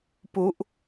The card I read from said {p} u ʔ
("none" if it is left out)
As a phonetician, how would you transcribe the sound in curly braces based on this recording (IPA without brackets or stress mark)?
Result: p